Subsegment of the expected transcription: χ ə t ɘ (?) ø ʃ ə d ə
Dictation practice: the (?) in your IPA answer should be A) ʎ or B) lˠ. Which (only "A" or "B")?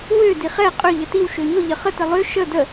B